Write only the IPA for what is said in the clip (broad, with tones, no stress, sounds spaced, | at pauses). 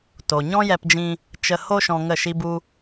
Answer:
t o˨ ɲ ɔ̃˦ j ɛ˧ p d͡ʒ ĩ˧ | t͡ʃ ə˧ h o˧ ʃ ɔ̃˧ ŋ ə˦˨ ʃ i˦ b u˦